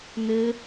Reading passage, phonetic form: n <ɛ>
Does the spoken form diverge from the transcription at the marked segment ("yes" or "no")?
yes